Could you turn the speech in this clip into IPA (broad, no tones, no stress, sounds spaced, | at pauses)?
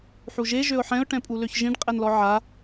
ħ u ʒ e ʒ ø ʊ̯ ħ ɛ̃ ʊ̯ ʈ ɛ̃ pʼ u l ø ç ʒ ĩ ɖ qʼ ɛ n l ɔ ʕ a